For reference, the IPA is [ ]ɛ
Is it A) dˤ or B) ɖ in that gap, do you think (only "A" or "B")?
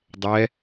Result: A